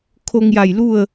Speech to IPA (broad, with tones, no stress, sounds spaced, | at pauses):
kʰ o˧ ŋ j a˧˩ j l u˥˨ ə̯